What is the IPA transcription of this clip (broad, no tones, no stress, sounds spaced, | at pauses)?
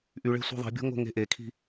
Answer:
ʔ y ɭ e̤ sʷ i̤ ðˤ i̤ bʲ o̤ ŋ o̤ ŋ e̤ ʔ e kʰ i̤